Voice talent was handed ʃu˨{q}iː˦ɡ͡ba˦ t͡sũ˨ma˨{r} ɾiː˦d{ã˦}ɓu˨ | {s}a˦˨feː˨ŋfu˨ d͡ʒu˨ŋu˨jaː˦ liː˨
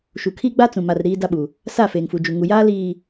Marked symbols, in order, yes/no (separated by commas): no, yes, no, yes